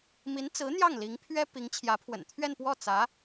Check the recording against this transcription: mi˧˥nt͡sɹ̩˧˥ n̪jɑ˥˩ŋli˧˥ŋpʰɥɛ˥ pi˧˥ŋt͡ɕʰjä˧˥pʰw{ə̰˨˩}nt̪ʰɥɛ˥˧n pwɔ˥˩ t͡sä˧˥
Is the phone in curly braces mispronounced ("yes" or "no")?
no